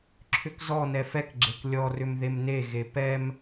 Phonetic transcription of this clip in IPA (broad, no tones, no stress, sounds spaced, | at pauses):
ǁʰ ʏ k z ɔ n ɛ f ɛ k ɡ͡ǁ e k lʲ ɔ r ʏ m ð e m n e ɣ e p ɛ m